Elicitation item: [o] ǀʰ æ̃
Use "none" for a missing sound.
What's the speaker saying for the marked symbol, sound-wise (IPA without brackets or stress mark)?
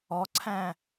ɔ